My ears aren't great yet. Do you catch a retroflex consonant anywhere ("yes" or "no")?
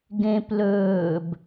no